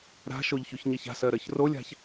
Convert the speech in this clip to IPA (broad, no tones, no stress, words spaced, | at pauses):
ɾa̤ʃoʎçʉçɲeç a̤sɜɾɜç rolʲa̤ç